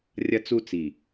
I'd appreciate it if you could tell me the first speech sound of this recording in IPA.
rʲ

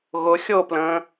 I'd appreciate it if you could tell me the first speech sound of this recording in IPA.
ɣ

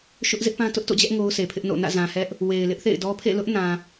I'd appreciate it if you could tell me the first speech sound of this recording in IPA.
ʃ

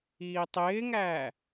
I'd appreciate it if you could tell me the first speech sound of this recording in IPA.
iː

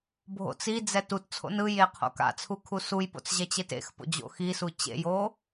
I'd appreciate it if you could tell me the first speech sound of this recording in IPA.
bʱ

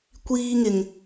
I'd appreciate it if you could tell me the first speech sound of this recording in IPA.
kʷ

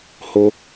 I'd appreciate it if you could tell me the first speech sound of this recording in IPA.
h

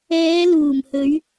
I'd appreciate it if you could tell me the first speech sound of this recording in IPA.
ɛː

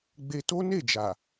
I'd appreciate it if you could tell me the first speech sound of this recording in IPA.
ɡ͡b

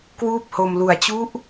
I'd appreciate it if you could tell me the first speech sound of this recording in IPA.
k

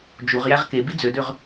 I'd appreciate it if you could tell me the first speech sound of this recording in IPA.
d͡ʒ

